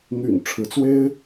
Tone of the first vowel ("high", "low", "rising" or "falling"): low